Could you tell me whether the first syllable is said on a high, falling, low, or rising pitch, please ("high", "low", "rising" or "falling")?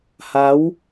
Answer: rising